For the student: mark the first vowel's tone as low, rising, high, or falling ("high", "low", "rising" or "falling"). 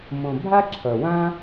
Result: low